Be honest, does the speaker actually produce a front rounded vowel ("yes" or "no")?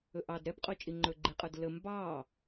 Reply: no